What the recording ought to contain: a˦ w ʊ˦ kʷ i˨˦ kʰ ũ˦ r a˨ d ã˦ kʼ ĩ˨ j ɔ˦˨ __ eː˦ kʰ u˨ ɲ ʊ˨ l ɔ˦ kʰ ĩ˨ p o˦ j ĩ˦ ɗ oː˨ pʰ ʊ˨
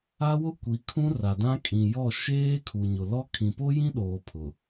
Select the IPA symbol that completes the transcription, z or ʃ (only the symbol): ʃ